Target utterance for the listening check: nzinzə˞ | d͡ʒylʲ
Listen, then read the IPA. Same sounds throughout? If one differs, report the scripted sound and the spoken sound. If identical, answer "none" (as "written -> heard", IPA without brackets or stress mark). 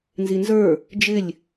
y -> ɪ